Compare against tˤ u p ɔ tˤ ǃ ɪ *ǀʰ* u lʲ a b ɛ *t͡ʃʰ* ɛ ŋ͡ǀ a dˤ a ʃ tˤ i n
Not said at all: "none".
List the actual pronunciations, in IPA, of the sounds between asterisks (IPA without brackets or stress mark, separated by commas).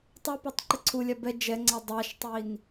ǀʰ, d͡ʒ